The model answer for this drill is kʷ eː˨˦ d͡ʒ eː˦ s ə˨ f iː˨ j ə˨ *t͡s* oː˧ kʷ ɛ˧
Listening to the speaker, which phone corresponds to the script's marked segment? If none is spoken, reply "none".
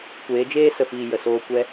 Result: s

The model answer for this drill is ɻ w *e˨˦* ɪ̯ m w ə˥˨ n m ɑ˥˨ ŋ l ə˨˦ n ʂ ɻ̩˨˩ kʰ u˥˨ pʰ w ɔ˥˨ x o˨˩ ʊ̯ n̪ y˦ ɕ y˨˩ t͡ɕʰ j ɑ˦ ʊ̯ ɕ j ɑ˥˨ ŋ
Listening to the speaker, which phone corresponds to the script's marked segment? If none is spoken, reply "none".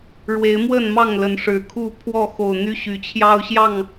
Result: e˨˦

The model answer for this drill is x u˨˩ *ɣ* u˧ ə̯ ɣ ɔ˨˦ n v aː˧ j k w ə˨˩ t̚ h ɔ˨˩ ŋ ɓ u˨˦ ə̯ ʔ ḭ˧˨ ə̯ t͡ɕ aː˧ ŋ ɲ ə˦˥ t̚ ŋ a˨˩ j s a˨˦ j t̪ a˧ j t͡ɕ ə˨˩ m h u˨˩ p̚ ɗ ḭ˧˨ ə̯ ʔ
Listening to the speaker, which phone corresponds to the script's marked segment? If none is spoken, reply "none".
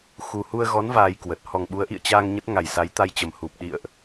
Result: h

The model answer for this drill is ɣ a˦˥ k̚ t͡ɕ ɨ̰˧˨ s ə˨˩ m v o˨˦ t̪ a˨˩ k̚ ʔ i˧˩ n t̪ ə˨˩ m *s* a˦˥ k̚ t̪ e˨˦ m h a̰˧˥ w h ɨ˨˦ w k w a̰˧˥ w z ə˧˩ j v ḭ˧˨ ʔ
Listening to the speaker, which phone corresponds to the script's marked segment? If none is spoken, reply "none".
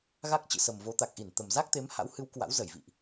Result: z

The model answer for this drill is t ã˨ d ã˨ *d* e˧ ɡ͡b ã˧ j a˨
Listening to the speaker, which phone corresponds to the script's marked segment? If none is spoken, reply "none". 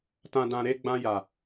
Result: ɾ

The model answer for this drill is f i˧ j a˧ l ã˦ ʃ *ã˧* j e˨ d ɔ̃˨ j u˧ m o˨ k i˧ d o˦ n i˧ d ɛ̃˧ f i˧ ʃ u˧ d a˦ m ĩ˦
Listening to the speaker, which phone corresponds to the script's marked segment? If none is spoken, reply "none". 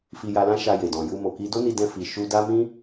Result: a˧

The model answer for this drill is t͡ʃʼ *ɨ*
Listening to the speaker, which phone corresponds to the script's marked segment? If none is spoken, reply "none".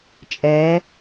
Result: ɛ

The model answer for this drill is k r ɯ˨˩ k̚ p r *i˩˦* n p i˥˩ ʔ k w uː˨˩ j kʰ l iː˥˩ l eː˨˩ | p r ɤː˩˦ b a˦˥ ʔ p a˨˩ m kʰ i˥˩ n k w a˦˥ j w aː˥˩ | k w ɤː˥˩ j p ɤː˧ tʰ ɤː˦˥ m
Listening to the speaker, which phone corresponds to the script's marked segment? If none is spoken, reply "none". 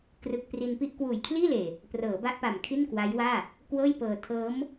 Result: i˧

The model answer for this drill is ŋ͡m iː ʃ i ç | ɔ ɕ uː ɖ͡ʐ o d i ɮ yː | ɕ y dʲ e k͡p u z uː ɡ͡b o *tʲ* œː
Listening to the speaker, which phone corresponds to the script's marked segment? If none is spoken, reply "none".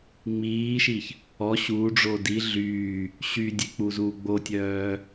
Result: tʲ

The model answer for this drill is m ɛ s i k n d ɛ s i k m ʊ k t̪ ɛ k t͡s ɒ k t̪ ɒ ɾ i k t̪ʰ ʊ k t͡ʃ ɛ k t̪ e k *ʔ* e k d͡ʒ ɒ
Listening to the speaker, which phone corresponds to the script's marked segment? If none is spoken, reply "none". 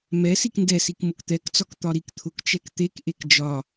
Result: ʔ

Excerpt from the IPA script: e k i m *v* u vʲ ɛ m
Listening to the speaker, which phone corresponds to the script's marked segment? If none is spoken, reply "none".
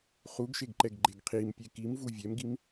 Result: v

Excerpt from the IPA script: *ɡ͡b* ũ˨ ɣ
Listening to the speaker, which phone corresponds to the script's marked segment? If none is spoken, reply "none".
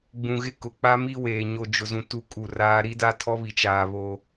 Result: ɡ͡b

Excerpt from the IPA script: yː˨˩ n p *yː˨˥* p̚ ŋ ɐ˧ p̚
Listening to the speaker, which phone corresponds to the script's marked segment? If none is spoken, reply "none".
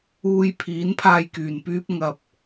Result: yː˥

